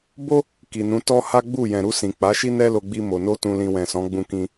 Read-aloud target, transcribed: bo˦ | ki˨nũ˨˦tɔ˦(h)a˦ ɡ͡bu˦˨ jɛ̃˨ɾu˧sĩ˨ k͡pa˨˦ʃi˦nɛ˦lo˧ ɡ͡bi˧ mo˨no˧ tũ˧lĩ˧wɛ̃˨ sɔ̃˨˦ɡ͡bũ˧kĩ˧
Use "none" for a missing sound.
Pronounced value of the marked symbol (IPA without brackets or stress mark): h